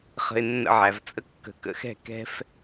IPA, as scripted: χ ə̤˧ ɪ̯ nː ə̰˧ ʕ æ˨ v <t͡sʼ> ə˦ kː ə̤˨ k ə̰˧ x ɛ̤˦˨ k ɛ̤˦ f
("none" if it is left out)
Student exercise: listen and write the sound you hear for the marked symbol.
t͡sʼ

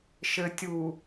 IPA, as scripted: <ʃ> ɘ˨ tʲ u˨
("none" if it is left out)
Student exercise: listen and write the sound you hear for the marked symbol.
ʃ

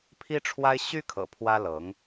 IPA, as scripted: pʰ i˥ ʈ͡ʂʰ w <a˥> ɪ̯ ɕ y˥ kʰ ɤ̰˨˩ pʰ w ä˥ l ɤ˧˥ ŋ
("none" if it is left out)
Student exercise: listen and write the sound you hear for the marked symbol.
a˥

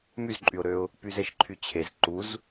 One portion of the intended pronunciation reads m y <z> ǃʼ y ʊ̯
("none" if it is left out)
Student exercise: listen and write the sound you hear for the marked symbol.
z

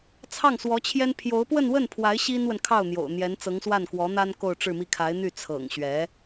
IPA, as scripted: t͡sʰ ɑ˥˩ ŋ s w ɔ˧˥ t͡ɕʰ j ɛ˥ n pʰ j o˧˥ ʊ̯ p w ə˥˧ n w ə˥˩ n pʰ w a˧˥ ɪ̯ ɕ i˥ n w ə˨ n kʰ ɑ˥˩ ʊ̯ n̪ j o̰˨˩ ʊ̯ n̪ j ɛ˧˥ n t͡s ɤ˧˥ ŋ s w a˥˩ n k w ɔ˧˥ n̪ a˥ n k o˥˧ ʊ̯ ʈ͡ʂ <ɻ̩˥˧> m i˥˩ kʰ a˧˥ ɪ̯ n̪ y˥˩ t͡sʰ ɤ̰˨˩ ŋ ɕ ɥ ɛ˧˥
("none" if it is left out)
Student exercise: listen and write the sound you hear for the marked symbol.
ɻ̩˥˧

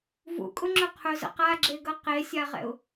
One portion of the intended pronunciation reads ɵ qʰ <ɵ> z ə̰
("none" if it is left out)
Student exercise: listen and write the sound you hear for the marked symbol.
ɵ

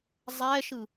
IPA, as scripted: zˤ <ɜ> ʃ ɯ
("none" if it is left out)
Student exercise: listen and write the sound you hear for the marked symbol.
ɛ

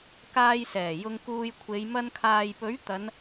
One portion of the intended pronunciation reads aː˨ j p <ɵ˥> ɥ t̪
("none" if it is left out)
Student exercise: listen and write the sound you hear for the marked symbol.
ɵ˨˥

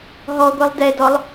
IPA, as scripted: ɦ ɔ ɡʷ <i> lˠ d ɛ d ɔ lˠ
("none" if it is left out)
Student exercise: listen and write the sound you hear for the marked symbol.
i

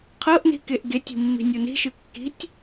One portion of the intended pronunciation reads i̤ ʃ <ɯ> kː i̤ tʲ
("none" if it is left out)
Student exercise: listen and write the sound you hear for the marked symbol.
ɯ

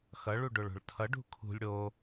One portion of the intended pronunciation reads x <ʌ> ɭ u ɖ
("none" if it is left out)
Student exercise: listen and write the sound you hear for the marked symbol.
ʌ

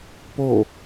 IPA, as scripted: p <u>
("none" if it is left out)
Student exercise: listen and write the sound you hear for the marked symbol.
o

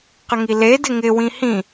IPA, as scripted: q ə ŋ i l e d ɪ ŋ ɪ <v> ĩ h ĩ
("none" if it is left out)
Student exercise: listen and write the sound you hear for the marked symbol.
w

